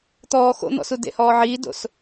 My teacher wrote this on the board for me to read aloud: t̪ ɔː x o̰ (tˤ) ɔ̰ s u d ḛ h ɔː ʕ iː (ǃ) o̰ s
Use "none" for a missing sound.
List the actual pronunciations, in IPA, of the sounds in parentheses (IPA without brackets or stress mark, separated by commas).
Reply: n̪, d